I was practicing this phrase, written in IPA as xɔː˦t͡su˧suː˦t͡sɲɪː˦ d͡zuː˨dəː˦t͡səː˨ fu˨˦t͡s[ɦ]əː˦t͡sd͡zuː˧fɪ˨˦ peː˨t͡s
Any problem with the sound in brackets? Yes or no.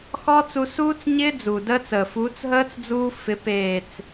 no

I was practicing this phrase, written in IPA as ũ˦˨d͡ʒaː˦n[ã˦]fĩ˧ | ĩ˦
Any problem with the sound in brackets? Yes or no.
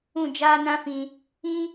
no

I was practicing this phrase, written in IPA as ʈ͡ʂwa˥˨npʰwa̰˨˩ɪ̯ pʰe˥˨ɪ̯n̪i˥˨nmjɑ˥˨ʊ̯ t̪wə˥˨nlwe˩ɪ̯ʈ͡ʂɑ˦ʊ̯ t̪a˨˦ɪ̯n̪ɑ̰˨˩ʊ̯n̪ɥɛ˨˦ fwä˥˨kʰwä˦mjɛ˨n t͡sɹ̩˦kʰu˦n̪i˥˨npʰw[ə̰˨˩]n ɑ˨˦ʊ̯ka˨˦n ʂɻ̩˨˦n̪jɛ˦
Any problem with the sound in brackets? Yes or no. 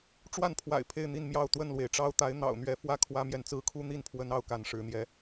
yes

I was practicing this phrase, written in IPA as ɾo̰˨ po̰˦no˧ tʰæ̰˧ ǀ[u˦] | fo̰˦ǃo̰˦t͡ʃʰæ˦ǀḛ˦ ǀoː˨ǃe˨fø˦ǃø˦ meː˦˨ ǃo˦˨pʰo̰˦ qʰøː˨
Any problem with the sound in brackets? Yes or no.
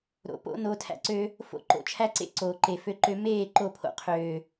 yes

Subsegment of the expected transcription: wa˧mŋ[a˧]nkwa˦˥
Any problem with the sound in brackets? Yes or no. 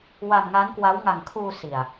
yes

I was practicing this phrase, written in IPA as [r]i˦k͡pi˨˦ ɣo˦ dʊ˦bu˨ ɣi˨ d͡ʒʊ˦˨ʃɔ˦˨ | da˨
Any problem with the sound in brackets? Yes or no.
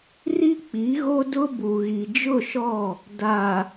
no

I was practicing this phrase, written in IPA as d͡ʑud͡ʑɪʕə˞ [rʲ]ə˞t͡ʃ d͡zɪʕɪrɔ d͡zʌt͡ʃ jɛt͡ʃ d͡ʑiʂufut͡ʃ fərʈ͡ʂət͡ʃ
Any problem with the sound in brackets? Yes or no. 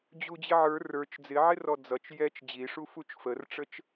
yes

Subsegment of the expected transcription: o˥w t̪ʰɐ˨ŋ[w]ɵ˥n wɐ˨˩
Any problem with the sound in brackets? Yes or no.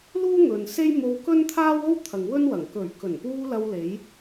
no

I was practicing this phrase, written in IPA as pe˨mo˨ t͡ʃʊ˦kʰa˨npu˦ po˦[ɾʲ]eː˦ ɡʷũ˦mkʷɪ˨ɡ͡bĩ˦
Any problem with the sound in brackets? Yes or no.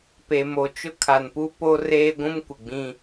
yes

